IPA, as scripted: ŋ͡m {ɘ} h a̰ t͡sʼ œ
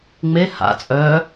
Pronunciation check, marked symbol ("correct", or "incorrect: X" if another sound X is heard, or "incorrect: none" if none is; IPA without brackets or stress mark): incorrect: e